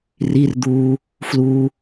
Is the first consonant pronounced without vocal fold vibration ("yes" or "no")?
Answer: no